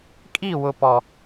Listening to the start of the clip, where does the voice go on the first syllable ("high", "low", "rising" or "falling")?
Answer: falling